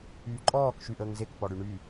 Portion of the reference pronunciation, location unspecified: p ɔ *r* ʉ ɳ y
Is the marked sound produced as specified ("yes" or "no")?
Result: no